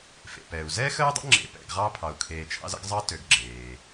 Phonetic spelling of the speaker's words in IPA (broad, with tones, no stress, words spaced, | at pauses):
fḛ˩pɛ˩u̯zɛ˥ xə˥y̯dˤə̰˥ŋ͡ǁḛ˨ pɛ̰˨ɡʁɑ˦ pʰɑ˩u̯kʰeː˨t͡ʃʰɑ̰˦z ə̰˥ɡzˤɑ˥ tø˨ɡɡ͡ǁeː˩